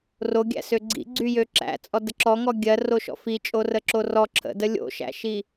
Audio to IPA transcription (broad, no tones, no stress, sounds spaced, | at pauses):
r o ɡʲ æ̰ s ø ɡ͡ǀ ḭ ɡ͡ǀ y j ø ǁ æ̰ t͡sʼ ɔ d ə ǁ ɔ ŋ ɔ ɡʲ ɜ r o ʃ ɔ̰ f i t͡ʃʼ o r ə ǁ o r ɔ ǁʰ ə̰ d ə lʲ o̰ ʃ æ̰ ʃ i